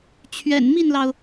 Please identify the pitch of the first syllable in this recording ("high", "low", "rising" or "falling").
low